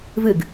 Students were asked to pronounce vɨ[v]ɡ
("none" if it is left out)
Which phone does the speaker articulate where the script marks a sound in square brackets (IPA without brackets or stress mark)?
none